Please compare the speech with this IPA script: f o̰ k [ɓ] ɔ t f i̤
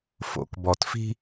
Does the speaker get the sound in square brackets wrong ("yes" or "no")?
yes